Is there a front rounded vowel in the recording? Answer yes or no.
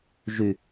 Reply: yes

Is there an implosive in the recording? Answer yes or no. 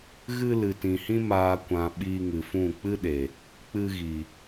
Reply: yes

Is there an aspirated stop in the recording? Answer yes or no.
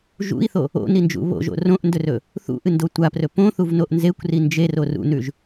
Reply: no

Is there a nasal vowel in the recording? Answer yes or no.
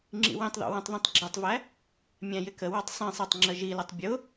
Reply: yes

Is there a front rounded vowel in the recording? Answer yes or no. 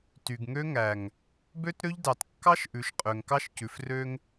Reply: yes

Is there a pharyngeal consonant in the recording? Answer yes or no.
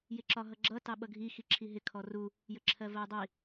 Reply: no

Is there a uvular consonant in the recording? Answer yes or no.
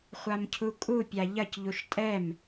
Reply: yes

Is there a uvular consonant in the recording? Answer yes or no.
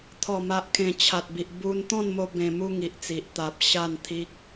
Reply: no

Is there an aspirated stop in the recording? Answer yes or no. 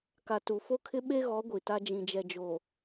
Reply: yes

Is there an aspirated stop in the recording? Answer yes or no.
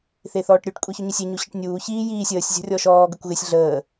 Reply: no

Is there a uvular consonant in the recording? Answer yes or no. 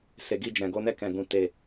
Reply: no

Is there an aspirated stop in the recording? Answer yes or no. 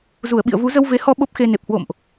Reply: no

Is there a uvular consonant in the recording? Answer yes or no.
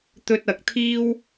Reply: no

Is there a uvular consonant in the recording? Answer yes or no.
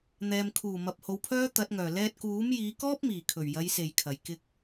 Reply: no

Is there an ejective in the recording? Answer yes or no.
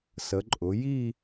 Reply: yes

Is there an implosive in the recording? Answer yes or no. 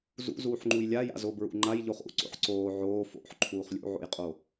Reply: no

